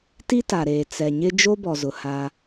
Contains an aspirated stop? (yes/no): no